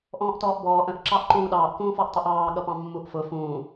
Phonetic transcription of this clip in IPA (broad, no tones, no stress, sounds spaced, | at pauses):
ʔ ɔ̃ː ʔ t ɔː ʔ b ɔː ʔ ə̃ ʔ ǁ ɑ ʔ ǃ ũː ɗ ɑː ʔ k ũː f ɔ ʔ tˤ ʊ ʔ ɑː ɠ ʌ p ɑ̃ mː u ʔ f ʊ f ũː